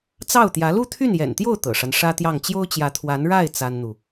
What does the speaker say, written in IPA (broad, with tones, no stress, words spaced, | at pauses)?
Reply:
t͡sɑ˥˩ʊ̯t̪jä˧˥ lu˥˧t̪ʰy˥˩njɛ̰˨˩nt̪jo˥˩ʊ̯ t̪ɤ̰˨˩ʂa˦nʂä˥t̪jɑ˥˩ŋ t͡ɕjo˥ʊ̯t͡ɕjä˧˥t̪ʰwa˧˥n ɻa˥˩ɪ̯ t͡sa˥nn̪u˨